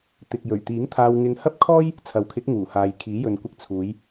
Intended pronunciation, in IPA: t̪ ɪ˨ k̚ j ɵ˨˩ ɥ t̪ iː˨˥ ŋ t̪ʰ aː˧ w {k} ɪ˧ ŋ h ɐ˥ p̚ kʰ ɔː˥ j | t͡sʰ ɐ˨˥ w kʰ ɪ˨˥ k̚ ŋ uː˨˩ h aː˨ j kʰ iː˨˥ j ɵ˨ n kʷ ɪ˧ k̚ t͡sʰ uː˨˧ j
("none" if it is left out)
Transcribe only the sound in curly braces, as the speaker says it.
ŋ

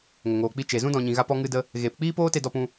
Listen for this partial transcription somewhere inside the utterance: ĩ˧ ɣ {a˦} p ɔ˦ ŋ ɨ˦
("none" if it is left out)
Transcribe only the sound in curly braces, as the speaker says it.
a˦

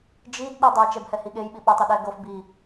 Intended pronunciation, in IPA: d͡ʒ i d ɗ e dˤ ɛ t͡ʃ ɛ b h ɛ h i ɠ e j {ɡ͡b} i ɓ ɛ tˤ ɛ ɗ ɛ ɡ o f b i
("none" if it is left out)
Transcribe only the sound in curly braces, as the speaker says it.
ɓ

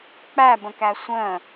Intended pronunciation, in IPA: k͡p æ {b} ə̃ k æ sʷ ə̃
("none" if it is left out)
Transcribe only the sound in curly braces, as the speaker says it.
b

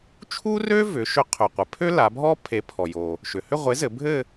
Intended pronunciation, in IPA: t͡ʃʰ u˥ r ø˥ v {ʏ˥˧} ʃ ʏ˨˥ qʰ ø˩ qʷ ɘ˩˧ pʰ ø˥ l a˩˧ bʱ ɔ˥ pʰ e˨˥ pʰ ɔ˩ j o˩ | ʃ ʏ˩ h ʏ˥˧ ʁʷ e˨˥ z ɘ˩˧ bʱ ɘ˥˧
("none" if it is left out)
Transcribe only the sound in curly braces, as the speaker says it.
ʏ˩˧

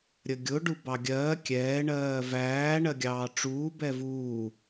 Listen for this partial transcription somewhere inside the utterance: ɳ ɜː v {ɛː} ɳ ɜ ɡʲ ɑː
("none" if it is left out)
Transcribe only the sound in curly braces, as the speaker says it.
æː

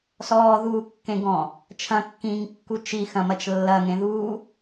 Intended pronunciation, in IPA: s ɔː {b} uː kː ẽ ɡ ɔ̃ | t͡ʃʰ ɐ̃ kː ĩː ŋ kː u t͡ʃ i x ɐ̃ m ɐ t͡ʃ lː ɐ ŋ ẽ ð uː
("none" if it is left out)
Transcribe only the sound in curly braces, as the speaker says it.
ð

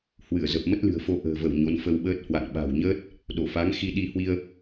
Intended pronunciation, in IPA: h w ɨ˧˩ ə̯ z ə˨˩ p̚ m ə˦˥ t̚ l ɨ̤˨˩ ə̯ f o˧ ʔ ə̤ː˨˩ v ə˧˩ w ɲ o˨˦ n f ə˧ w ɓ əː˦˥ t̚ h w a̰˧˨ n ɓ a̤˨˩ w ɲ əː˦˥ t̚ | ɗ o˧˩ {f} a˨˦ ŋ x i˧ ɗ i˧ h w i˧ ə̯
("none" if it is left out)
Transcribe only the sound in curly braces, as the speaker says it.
f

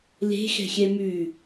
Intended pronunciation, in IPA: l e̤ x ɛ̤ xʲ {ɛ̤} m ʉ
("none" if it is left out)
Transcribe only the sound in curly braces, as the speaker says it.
ɛ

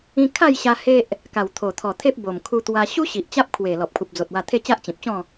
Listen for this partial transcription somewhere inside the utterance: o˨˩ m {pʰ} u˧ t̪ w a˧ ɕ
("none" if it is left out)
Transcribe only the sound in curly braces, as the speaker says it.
kʰ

